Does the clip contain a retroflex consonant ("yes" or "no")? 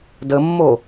no